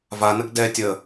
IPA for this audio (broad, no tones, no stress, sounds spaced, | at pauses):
v a n ə ɡ d ɛ tʲ ə